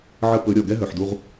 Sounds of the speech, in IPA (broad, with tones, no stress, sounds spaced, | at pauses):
ʕ ə˦ p ɵ˨˦ ɾʲ ɔ˨ ɡ ɛ˦ ɦ œ˨ ħ d u˧ ʁ